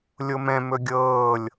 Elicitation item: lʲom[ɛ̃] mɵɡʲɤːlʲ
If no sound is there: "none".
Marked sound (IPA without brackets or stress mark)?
ɛ̃